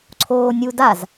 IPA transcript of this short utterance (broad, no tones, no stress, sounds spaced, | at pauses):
ǀʰ oː nʲ u d a z